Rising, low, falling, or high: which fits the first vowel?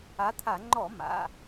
rising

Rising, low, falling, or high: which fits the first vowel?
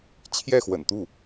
falling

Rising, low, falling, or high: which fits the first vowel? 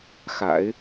low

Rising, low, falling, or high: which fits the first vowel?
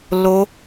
high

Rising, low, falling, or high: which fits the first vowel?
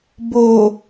low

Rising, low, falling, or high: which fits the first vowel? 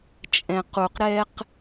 low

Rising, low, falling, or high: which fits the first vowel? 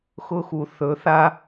high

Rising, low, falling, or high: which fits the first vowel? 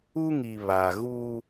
high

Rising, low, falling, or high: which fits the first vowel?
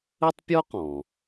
high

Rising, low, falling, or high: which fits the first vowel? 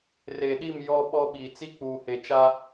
low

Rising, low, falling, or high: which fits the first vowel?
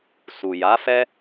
low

